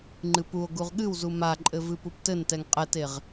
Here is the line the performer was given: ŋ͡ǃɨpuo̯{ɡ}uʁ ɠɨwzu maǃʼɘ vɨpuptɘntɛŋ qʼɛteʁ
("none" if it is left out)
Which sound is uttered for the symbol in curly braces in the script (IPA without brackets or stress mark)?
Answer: ɡ